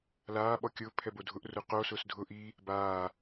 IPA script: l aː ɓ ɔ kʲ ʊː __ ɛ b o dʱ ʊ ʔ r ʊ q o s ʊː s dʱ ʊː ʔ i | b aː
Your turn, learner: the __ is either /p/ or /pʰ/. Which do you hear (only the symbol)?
pʰ